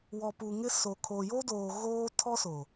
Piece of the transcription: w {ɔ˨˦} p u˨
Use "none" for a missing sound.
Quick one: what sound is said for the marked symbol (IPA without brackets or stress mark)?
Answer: ɔ˨